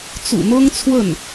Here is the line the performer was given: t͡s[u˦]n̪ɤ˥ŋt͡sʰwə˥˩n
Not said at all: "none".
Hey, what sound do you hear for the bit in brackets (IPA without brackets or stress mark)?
ṵ˨˩